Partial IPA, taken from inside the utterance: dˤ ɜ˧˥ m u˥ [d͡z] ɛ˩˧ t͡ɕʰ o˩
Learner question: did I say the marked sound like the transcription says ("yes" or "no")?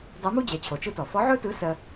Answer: no